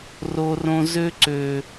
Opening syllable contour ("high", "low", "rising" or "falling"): high